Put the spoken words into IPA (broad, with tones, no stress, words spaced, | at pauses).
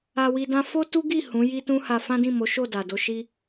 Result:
a˧wi˧dã˦ fo˦tu˦ɡi˦˨ hũ˨˦ji˦tũ˦ha˧ fã˦dĩ˦˨mo˨˦ʃo˦˨ da˨do˧ʃi˦